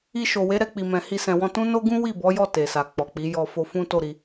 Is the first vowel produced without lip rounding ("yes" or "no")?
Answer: yes